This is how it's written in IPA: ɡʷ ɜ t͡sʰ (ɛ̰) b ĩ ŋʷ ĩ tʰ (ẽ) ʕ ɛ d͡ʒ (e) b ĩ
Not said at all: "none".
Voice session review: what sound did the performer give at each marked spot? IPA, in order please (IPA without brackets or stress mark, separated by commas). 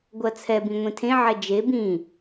ɛ, ẽ, e